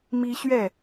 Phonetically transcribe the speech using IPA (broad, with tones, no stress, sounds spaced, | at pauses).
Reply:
m i˦ ɕ ɥ ɛ˥˨